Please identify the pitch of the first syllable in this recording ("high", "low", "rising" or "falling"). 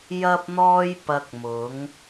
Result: high